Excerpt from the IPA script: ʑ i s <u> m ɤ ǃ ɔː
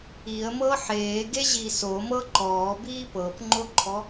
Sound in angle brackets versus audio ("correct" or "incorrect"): incorrect